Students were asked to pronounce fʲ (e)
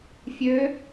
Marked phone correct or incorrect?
incorrect: ø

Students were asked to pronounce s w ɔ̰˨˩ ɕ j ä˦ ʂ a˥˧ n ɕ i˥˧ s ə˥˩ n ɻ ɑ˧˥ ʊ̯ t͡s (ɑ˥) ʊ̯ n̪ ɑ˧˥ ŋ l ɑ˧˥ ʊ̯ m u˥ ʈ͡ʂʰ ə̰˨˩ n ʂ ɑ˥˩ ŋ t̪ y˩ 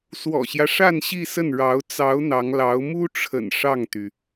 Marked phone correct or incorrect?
incorrect: ɑ˧˥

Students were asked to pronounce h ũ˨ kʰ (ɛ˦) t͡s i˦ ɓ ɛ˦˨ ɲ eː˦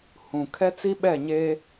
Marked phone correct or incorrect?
correct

